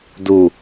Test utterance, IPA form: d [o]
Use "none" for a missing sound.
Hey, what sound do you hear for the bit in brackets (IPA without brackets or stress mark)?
u